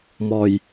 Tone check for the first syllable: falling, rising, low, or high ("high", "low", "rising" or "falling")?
low